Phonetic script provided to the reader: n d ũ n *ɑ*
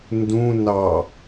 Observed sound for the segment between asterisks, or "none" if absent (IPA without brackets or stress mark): ɑ